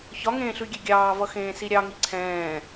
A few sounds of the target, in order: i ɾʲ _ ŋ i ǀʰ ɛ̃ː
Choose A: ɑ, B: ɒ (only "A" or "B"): A